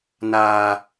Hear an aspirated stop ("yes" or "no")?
no